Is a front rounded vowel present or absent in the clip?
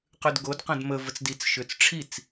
present